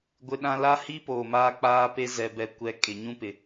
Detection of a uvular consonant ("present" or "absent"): absent